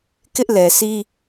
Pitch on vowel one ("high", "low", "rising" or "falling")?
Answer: high